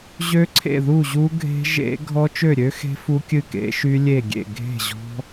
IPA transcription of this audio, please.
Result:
ʑ ø˦˥ ǀʰ ḛ˥˩ ð u˥˩ ʑ u˦˥ ɡʱ e̤˦˥ ʒ ḛ˦˥ ɡʱ ɔ˦˥ t͡ʃ ø˥˩ ɾʲ ø˦˥ x e̤˦˥ f u˦˥ kʲ ɨ˥˩ k ḛ˦˥ ʃ y˦˥ lʲ e˥˩ ɡʲ ḛ˥˩ ɡʱ e̤˥˩ ʑ ɔ̤˦˥

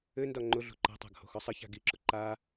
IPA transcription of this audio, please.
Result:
ɘ n d ɒ ŋ͡ǃ ʊ ɮ o̤ ǃ a̤ tˤ a̤ ɡ h o̤ x ɒ sˤ ɘ ç a̤ ɡ i ǁ ʊ ǃ a

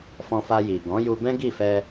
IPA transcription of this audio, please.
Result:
f ɔ̃˧ f a˧ j i˨ ɡ ɔ̃˨˦ j u˧ b ɛ̃˦ ɡ i˦˨ f ɛ˧

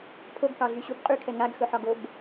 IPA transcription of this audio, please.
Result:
pʰ o ɡ k ɑ ɮ y ɕ u b qʼ y kʰ ɛ ŋ a ɡ x ɵ ħ ɒ ɡ o b

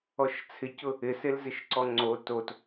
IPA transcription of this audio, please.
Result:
ɔ ʃ t͡sʰ ɪ c ʊ | ɪ s e l z ɪ ʃ ǀ ɔ ŋ͡ǀ o t o t

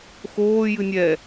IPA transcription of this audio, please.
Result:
x oː j ɨ nʲ ɛ

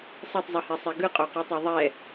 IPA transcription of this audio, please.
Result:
sˤ ɯ tˤ zˤ ɯ h ɛ sˤ ɛ ɡ ɯ qʼ o q i tˤ o ðˤ ɛ

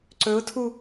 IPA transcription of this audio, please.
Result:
ǀ ɵ ʊ̯ tʰ u

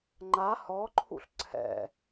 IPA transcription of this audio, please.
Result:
ŋ͡ǃ a h ɔ ǃʰ ṵ ɬ ǀʰ ɛ̰

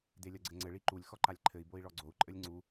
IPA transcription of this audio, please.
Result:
d e lʲ ɐ ɡ͡ǀ ɘ ŋ͡ǀ ɘ ɭ i ǃ u lʲ x ɔ ǃ a lʲ ǃʰ ɘ i̯ b o i̯ ɭ ɔ ɡ͡ǀ o u̯ ǃʼ ɘ lʲ ŋ͡ǀ u

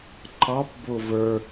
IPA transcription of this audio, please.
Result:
ǃ ɑ p b ʊ v ə˞

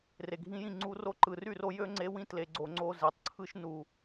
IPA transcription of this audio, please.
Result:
r e˨ ɡʱ ĩ˧ j ĩ˦˨ ŋ͡ǀ u˧ r o˧ ǃ ɯ˨ r y˦˨ r o˧ j ø˦ ŋ͡ǀ e˧ w ĩ˦ t l e˨ ɡ͡ǀ o˨ ŋ͡ǀ o˧ z e˨ tˤ ǀʰ ɯ˦ ʃ n u˨

